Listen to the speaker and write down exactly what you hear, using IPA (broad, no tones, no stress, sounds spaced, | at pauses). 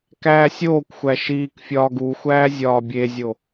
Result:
k æː sʲ oː kʷ xʷ æ ʃ iː k fʲ ɒː ɡ uː xʷ æː zʲ ɒː bʲ e zʲ o